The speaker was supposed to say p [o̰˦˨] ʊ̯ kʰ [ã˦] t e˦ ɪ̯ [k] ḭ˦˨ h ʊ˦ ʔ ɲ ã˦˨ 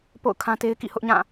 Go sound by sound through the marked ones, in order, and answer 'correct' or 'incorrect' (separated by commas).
correct, correct, correct